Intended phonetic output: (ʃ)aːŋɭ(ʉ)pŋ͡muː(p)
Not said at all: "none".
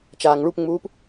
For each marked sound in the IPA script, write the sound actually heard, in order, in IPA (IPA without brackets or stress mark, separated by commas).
t͡ʃ, u, p